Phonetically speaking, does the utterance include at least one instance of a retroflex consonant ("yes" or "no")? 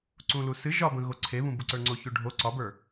yes